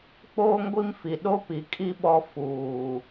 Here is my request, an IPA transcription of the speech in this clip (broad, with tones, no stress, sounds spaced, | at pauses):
k͡p oː˦ ŋ ɡʷ i˦ m f i˨ ɗ o˦ p i˨ kʼ i˦ ɓ ɔ˦ f uː˨